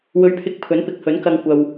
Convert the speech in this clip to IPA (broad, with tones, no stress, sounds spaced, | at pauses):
w ɵ˨˥ ɥ pʰ ɪ˨˥ k̚ pʰ ɵ˨˥ n p ɪ˨˥ k̚ h ɵ˨˥ n k ɐ˧ ŋ kʷ ɐ˧ w